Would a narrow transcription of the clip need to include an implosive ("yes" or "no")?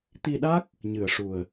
yes